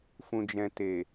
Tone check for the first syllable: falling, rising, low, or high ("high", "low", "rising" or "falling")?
low